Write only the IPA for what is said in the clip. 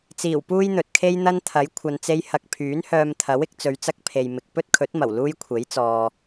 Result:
t͡siː˨˩wpuː˥jn̪ɵ˨t̚kʰe˥j n̪ɐ˥nt̪ʰɐ˨˥j kʷʰɐ˧nt͡se˥j hɐ˧k̚ pʰyː˨˥nhœː˧mt̪ʰɐ˨˥w ɪ˨˥k̚ t͡sɵ˨˧ɥt͡sɐ˥k̚pʰe˨jmɪ˨k̚ pɵ˥t̚kʰɵ˨˥t̚mɐ˨˩w luː˥jkʷʰe˨˥jt͡sɔː˨

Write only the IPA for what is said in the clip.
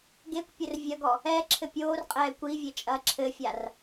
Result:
ɡekʷpʲɘr vʲɐɡɔ | ɛǁʰɘ pʲoːrqʼɛː kʷivʲet͡ʃʼɐː ǁʰɘfʲar

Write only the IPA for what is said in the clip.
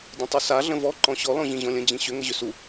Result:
dʲə̃tˤusa ɮə̃vɔ ǃɔ̃ɕɔ lɔ̃ʑĩʑɔ̃lʲə̃ d͡ʑĩɕʏ ŋəʑʏsu

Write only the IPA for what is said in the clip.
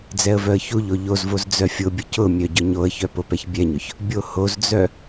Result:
d͡zɛə̯vœə̯çuʎo ʎozvoz d͡zœfʲʊbʲʊ cʊmʲœ ɟʊɲoə̯çœ popɛçbʲɛɲʊç | bʲohozd͡zœ

